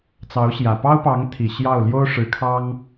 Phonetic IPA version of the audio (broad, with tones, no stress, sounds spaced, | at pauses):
t͡s ɑ˧˥ ʊ̯ ɕ j ä˨˩ p ɑ˥ ʊ̯ p ɑ˧˥ ŋ t̪ʰ i˨˩ ɕ j ɑ˥˩ ʊ̯ l j o˥ ʊ̯ ʂ ɻ̩˧˥ kʰ ɑ˥ ŋ